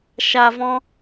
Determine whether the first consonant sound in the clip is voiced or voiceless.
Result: voiceless